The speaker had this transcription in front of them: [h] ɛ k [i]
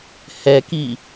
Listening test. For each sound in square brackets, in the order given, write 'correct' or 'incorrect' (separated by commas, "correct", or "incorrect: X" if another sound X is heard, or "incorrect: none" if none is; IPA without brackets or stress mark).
correct, correct